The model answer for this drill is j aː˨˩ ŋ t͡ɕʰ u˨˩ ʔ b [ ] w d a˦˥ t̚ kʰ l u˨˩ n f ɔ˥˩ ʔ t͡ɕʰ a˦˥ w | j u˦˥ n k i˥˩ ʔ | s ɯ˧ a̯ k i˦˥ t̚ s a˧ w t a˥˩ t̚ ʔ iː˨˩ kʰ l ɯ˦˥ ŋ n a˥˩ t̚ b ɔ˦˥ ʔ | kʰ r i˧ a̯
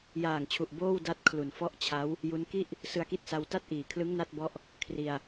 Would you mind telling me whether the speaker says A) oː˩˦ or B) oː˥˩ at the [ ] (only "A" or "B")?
B